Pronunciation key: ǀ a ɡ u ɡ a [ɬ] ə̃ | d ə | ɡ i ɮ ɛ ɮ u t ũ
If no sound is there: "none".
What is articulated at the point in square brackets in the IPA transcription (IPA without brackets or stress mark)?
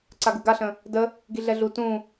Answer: ɬ